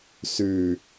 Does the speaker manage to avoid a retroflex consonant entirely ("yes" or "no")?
yes